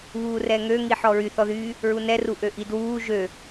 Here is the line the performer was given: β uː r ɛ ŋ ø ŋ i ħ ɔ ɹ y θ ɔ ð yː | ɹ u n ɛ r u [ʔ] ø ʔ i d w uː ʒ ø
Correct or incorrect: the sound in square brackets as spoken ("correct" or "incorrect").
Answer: correct